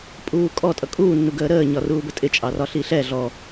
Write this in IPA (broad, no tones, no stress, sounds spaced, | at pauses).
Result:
pʼ uː kʼ ɔ tʼ ʌ kʼ uː nː u ɡ əː ɾ əː ɲ ɒ r uː b ə tʼ ɪ t͡ʃʼ ɑ r ɒ ɬ i ɬ ɛ ɮ ɔ